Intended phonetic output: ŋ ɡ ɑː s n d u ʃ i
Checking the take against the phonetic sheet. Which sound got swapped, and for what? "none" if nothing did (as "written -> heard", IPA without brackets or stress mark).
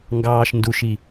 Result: s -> ʃ